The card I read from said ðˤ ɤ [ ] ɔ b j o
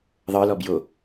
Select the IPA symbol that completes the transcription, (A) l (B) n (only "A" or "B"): A